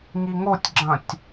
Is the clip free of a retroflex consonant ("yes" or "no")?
yes